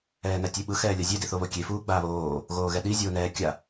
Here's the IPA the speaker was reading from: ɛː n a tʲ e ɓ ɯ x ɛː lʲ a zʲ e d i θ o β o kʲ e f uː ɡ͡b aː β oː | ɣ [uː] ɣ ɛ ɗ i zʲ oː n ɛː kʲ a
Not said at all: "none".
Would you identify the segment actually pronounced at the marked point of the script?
oː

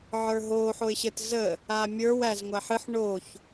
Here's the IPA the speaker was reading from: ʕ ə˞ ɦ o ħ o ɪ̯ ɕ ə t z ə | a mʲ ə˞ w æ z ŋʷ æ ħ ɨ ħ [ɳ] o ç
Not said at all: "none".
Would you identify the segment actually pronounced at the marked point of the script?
ɳ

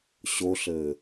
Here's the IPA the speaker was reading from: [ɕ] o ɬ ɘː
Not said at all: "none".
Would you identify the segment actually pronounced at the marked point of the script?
ɕ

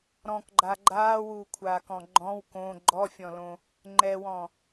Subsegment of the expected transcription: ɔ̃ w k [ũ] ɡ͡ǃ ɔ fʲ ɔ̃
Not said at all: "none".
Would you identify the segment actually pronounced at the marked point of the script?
õ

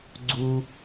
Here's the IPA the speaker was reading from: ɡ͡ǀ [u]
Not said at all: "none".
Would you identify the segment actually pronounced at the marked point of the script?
u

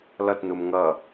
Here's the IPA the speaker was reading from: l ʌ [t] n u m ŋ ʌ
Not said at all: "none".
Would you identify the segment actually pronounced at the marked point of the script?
t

